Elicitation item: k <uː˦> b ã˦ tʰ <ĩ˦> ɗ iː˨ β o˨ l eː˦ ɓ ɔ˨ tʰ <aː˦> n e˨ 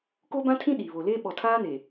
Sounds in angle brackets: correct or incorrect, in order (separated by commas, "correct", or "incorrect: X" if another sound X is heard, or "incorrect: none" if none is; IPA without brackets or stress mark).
incorrect: oː˦, correct, correct